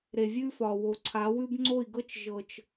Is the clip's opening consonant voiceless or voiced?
voiced